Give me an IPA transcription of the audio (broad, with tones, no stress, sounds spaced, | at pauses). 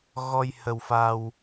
ɣ ɔ˧ j h ə˧ w f a˧ w